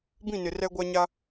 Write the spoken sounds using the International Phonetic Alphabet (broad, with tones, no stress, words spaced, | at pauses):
bĩ˦˨nɪ˨ rɛ˦ɡʷa˦ɲa˦